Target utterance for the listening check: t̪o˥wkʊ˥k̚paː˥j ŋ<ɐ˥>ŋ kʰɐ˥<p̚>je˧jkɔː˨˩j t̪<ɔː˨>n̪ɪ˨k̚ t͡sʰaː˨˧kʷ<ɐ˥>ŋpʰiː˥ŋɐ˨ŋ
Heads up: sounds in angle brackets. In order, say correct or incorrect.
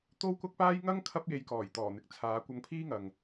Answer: correct, correct, incorrect, incorrect

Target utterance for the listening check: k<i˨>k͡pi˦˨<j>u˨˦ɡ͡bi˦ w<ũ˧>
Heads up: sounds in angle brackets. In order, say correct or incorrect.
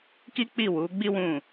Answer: incorrect, incorrect, incorrect

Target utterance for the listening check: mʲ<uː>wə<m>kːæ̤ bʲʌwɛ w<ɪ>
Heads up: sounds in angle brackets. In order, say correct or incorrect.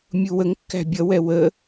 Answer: incorrect, incorrect, incorrect

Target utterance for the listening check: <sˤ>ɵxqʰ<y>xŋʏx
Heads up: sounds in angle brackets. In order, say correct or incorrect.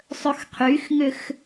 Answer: correct, correct

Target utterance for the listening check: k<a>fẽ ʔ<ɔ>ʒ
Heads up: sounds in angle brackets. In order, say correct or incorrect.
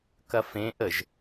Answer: incorrect, incorrect

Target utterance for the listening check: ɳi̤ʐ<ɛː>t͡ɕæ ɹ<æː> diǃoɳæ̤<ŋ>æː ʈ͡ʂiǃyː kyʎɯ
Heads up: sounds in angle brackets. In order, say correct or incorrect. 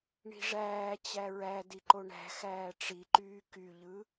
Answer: incorrect, incorrect, incorrect

